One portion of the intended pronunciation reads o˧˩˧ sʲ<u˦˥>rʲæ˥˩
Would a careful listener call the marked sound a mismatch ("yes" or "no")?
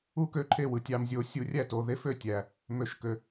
yes